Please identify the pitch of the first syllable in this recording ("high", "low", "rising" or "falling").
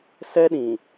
high